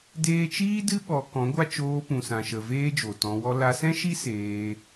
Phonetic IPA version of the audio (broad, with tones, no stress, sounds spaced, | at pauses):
d eː˦ t͡ʃ iː˦ d ɨ˦ ɓ ɔ˧ k ɔ̃˨˦ ɡʷ a˦ t͡ʃ oː˧ p ũ˨ s ã˨ ʃ ə˨ v eː˦ d͡ʒ o˨ t ɔ̃˧ w ɔ˦ l a˧ s ɛ̃˦ ʃ i˦ s eː˧